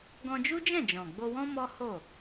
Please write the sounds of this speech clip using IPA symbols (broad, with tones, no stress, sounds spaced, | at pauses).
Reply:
ɡ ɔ̃˧ d͡ʒ u˦ d͡ʒ ɛ̃˦˨ d͡ʒ ɔ̃˨ ɡ͡b o˧ w ɔ̃˦ m ɔ˦ h o˦˨